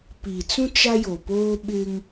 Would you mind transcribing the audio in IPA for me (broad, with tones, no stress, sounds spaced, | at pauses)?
p iː˨ t͡s ũ˦ t͡ʃ a˦ j o˨ p oː˦ ɓ ɪ˦ ŋ